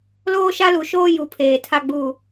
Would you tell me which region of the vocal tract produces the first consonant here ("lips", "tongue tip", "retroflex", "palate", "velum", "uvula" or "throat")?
tongue tip